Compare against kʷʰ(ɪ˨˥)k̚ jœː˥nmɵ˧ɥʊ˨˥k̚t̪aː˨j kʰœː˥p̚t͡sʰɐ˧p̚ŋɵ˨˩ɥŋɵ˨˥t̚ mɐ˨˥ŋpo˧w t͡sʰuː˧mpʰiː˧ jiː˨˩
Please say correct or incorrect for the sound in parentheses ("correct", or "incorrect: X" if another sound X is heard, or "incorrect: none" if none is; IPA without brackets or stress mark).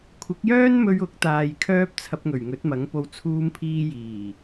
correct